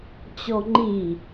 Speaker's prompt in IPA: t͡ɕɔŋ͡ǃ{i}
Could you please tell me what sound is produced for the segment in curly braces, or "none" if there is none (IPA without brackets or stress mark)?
i